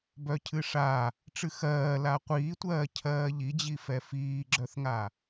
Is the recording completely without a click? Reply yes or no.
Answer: no